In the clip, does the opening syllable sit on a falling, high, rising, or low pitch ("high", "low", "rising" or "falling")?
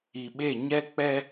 low